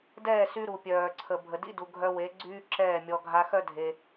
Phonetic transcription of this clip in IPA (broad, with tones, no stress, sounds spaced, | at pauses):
d ɛː˦˨ s y˧ ɾ u˨ pʲ œː˨ ǀʰ ə˨ bʱ ə˨ d ḭ˧ d u˨ ɡʱ œ˧ w e˨˦ ɡ͡ǀ yː˦ ǁ ɛː˦˨ mʲ ɔ˧ ɡʱ a˧ x œ˦ dʱ e˧